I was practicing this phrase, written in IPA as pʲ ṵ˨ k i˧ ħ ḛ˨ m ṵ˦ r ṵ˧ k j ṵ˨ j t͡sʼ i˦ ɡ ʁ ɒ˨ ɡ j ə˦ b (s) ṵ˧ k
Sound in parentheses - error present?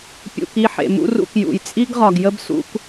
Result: no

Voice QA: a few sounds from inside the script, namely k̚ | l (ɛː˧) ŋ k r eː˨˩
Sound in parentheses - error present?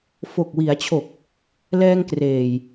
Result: no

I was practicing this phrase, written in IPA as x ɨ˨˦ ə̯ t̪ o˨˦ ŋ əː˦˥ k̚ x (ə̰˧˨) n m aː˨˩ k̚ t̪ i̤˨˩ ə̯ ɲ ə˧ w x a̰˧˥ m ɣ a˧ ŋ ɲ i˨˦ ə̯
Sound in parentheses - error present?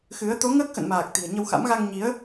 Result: no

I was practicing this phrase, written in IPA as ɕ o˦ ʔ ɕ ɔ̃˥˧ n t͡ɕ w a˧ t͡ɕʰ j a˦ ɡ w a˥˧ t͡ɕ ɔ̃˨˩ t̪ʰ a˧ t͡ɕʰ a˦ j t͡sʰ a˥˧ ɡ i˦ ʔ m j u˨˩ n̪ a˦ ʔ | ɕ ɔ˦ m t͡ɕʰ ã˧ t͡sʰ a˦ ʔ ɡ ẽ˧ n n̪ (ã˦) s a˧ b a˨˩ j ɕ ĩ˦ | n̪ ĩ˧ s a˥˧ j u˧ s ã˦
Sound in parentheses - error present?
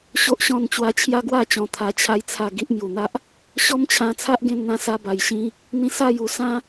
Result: yes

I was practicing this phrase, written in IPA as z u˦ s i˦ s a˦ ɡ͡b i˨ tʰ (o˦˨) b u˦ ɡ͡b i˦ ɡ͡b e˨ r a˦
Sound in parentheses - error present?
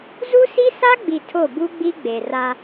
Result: no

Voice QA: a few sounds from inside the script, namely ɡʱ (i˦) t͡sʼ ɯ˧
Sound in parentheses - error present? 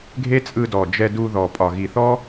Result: yes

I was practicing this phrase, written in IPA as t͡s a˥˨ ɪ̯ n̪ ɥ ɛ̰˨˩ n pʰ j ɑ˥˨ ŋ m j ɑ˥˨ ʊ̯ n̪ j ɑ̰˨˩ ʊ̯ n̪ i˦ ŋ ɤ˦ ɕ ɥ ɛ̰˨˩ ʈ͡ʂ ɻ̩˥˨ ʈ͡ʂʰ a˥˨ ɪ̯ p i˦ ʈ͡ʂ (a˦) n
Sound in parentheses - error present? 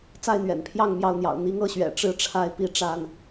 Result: yes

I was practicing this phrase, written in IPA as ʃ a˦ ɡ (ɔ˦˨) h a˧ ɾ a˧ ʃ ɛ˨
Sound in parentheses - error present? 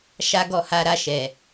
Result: no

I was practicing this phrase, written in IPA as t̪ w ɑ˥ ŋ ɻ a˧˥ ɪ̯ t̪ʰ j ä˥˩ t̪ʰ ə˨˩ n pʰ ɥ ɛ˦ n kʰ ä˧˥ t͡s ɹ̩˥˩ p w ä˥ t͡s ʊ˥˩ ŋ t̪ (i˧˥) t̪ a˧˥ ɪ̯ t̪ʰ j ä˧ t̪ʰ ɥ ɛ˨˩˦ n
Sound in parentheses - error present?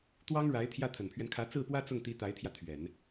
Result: no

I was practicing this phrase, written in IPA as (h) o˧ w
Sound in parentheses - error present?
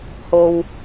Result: no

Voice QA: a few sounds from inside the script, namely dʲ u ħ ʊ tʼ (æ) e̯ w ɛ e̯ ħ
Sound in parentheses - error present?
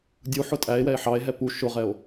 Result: no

